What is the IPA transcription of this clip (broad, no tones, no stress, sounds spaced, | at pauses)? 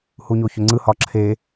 h u ɲ o ç ʏ ŋ͡ǀ ɯ h ɒ ǁʰ e